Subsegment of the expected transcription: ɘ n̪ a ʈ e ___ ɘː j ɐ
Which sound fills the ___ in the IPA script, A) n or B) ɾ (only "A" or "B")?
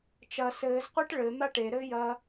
B